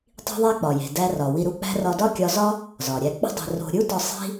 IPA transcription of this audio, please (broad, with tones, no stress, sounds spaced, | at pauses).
tˤ i̤˥ ðˤ æ˥ k͡p ɒ˩ j e̤˩ d æ˧ r ɒ˩ w i˧ ɾ u˧ k͡p æ̤˥ r ɒ˧ d ɒ˥ kʲ ɒ˧ z ɒ˥ | z ɒ˩ ɾʲ æ˧ k͡p ṳ˥ dˤ e̤˧ r o̤˧ ɾʲ u˥ t ɒ˧ sˤ i̤˥